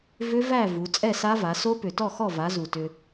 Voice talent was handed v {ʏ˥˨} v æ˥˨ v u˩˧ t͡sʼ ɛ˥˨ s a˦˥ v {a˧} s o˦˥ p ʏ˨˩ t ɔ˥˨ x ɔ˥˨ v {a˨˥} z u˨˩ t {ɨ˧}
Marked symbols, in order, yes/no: no, no, yes, no

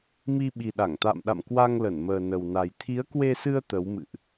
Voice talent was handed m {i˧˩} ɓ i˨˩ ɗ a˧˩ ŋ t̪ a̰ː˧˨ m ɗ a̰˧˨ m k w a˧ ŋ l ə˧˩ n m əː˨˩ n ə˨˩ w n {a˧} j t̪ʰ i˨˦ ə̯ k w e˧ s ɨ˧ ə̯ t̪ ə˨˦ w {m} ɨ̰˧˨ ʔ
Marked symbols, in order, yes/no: no, no, yes

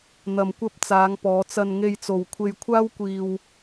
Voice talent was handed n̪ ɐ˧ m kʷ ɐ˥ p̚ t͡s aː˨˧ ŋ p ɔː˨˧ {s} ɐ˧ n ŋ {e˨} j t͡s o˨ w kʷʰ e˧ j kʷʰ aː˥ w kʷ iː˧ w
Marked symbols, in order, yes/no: no, no

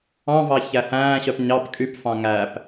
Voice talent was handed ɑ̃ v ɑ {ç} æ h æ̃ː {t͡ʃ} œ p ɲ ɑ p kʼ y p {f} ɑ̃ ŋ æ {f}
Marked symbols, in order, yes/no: yes, no, yes, no

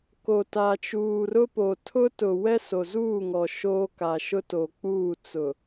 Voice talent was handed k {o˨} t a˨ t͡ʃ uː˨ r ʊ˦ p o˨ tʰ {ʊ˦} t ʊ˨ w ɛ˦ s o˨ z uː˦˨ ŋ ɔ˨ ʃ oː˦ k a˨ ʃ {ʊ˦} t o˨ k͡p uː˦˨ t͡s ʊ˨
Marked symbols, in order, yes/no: yes, yes, yes

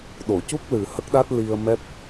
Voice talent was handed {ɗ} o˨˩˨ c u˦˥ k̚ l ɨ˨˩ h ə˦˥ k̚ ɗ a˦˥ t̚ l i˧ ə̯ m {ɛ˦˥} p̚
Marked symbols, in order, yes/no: yes, yes

